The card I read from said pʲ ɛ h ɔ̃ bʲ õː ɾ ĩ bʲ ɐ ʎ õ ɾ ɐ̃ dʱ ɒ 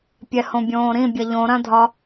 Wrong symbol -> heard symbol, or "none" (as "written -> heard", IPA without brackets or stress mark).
ɔ̃ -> õ